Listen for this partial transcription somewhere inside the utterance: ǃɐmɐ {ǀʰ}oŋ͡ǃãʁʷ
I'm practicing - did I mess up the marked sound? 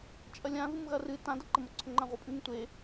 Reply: no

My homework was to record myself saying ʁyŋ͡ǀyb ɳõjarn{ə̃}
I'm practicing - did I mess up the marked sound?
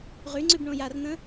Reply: no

